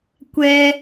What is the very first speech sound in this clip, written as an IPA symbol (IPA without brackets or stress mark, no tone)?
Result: kʷ